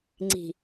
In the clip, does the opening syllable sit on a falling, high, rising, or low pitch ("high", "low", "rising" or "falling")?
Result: low